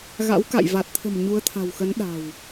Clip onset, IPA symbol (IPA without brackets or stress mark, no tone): ɣ